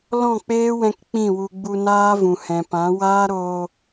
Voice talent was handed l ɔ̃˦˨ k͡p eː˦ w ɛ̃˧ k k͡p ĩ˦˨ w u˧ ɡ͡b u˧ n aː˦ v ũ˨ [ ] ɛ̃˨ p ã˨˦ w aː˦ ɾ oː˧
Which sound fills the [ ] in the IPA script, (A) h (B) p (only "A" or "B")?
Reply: A